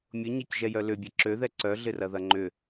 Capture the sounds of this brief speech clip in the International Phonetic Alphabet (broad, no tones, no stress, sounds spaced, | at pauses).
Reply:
mʲ ʊ ɲ ɛ c ʒ ɛ j œ l ʏ bʲ ɐ ǁ ø ð ɛ ǀ œ ɮ ɪ r ɐ ð ɐ ŋ͡ǃ ʏ